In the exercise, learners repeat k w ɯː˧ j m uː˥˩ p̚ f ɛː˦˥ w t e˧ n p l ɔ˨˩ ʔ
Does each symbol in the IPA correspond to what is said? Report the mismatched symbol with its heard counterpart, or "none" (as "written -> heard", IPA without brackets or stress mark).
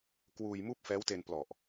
ɯː˧ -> uː˧